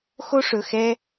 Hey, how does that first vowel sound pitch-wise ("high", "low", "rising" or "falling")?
high